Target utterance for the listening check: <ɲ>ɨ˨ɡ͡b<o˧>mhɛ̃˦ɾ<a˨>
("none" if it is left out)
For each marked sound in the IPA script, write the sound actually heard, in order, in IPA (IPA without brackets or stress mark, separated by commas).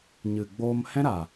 ɲ, oː˧, a˨